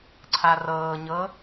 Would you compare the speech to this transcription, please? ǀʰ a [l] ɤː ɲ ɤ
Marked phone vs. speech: incorrect: r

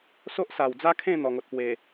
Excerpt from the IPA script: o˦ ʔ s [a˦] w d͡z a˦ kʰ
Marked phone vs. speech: incorrect: a˨˩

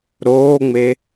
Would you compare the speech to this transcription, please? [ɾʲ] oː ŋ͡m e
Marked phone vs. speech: incorrect: ɾ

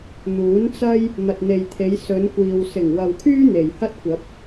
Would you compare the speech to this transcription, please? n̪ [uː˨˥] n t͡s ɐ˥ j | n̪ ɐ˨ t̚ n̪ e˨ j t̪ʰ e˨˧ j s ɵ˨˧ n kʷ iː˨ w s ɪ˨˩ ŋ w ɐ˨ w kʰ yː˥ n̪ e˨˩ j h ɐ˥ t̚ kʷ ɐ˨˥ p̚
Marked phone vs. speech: correct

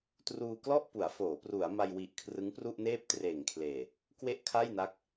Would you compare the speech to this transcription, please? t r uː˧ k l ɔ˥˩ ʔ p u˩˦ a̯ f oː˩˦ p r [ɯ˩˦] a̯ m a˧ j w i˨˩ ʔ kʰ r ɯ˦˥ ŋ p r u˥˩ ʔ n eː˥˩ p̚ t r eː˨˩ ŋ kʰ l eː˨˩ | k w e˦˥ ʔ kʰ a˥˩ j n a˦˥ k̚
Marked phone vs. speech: incorrect: u˩˦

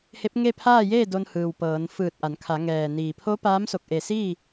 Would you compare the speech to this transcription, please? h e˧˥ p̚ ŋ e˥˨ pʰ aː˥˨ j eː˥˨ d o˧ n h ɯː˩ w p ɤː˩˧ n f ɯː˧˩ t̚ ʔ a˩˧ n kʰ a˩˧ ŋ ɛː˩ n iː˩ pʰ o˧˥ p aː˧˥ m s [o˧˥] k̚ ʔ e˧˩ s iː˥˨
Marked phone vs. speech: incorrect: o˧˩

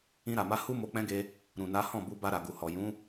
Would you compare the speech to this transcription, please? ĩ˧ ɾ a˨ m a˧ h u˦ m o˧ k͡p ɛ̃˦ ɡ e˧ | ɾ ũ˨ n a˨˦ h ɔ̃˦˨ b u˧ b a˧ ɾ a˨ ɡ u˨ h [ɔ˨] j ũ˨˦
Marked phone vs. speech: correct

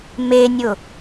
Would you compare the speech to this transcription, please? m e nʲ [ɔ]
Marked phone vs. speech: incorrect: ʊ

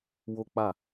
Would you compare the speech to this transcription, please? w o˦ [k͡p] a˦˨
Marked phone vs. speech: correct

